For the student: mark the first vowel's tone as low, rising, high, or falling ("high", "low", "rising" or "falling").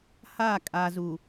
falling